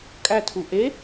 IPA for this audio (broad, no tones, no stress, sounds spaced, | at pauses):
kʼ æ tʰ u ʔ e